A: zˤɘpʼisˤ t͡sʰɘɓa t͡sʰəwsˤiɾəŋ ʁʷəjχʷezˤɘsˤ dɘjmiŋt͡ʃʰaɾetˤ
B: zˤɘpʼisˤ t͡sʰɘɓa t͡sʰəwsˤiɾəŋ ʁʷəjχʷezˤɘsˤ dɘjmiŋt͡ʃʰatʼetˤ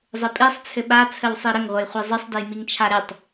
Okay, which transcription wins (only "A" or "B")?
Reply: A